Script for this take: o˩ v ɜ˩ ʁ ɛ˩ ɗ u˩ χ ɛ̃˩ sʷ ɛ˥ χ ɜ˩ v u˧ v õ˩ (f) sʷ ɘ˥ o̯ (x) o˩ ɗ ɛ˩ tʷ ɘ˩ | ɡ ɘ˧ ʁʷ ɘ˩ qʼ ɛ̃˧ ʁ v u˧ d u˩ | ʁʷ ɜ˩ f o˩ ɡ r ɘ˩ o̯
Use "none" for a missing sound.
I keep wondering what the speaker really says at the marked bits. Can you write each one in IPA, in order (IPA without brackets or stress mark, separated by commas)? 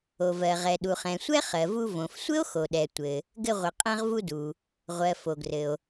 f, x